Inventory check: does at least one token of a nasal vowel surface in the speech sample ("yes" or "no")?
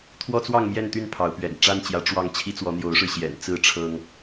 no